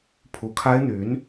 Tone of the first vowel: rising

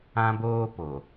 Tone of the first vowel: high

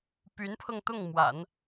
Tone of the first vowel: rising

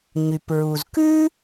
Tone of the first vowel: low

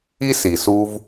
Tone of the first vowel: high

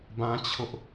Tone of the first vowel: high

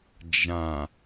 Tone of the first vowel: low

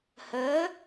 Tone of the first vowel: rising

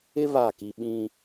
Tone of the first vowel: high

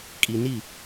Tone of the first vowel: low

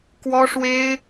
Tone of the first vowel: high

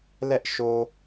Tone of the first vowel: high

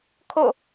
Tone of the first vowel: falling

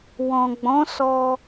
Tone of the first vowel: low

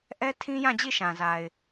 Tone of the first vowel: high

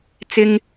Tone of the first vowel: high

